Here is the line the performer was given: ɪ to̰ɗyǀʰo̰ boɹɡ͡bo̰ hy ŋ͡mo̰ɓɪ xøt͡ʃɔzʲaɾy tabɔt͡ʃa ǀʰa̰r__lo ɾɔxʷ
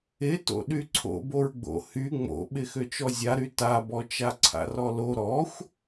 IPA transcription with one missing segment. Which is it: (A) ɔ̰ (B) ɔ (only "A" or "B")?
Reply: B